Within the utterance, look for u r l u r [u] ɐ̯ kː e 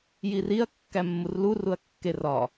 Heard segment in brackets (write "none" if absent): u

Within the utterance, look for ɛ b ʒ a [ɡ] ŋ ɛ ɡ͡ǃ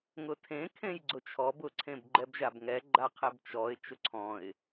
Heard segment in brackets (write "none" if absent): b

